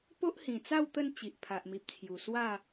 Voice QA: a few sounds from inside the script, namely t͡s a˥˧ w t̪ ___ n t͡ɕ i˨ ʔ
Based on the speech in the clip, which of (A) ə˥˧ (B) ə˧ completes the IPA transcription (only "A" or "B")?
A